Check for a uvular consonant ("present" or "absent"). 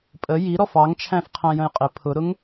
present